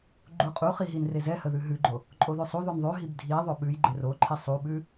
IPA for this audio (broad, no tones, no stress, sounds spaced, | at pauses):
ɡ͡ǃ u qʼ u χ i ɦ i n r e z ɛ h ə ð ʉ ɦ ʉ ɡ͡ǃ o | ǃʼ o ð ʉ sˤ u ð o n ðˤ ʉ ɦ i b dʱ i ðˤ o ɓ ʉ j ɡ͡ǃ e r o ǃʰ i sˤ u ɓ ʉ